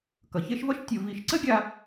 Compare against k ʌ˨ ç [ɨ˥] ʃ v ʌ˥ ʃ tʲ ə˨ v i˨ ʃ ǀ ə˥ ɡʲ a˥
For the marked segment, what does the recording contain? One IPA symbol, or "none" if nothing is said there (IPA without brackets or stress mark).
e˥